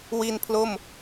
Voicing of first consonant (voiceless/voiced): voiced